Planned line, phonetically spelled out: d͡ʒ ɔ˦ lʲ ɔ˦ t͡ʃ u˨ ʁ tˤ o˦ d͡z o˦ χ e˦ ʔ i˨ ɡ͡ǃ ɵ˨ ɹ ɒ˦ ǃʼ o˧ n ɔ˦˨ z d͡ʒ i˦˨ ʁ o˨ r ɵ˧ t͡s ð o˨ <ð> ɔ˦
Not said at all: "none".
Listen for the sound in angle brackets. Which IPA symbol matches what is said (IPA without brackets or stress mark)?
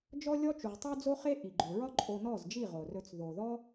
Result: ð